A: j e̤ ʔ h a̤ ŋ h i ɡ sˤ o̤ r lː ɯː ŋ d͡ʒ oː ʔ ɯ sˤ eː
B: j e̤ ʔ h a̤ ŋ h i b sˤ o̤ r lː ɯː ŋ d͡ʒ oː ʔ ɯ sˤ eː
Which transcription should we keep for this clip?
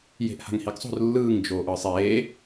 A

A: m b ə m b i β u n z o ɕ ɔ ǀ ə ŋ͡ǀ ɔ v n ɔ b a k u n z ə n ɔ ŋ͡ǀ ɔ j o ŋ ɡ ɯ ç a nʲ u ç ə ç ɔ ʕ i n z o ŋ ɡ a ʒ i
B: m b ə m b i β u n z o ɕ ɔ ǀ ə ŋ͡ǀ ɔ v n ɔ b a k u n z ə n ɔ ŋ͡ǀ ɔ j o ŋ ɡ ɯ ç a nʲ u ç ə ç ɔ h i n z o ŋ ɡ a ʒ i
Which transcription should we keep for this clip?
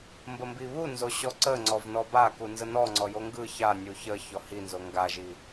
B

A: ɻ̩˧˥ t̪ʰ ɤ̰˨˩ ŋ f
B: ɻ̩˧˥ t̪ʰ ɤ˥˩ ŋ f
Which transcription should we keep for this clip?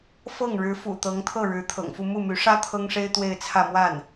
A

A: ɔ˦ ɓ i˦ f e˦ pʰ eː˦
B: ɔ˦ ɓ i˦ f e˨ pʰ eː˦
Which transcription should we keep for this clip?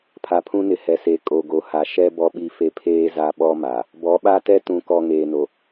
A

